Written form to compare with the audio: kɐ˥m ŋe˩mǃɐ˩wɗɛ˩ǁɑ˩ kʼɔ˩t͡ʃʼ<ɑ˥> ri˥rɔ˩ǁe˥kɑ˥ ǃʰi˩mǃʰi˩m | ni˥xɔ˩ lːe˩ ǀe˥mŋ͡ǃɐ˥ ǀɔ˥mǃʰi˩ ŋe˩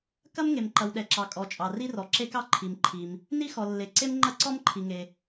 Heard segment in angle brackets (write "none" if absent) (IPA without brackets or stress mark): ɑ˩